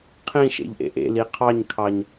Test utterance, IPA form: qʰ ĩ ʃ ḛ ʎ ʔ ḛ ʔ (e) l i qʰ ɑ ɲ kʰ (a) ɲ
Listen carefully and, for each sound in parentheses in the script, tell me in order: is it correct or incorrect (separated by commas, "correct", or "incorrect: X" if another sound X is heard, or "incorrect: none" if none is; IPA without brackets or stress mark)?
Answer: incorrect: ḛ, incorrect: ɑ